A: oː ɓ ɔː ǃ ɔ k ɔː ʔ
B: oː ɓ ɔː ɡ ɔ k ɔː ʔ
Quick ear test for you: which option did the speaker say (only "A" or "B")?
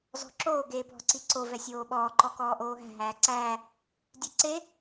A